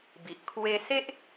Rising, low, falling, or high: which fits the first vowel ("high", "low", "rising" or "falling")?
low